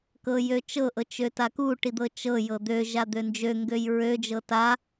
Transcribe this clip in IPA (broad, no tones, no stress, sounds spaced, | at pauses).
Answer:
k ɤ j ø t͡ʃ ɤ ʔ ɤ t͡ʃ ø t a k u ʈ i d̪ ɤ t͡ʃ ɤ j ɤ d̪ ø ʒ a d̪ ø n d͡ʒ ø ŋ ɡ ø j ɹ ø d͡ʒ ɤ t a